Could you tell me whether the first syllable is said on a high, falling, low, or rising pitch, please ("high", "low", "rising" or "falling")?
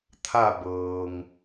falling